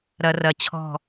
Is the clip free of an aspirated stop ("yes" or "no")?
no